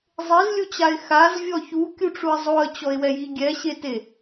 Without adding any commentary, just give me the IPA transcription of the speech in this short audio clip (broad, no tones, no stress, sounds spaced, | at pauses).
zˤ e z lʲ u t͡ɕ a ɪ̯ x a z vʲ ɔ ç u kʲ u ʈ͡ʂ u ə̯ zˤ o ə̯ t͡ɕ ɔ ɪ̯ w ɛ j i ɡʲ ɛ ɕ e t e